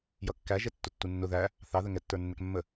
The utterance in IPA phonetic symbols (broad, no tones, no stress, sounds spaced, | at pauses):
j ʌ kː æ ʒ ɛ tː ʊ tː u nː ʊ ð æ | θ ɑ ð ə ŋ ɛ tː ə˞ nː ɛ k mː ə